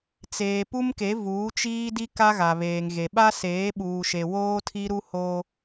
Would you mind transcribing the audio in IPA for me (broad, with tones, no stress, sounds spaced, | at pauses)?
t͡s eː˨ p u˦ m k e˨˦ v uː˨˦ t͡ʃ iː˦ d i˦ k a˦ ɣ a˨ β eː˨ ŋ ɣ e˨ ɓ a˦ s eː˨˦ ɓ uː˨ ʃ e˨ w oː˦ tʰ i˦ ɾ u˦ h o˦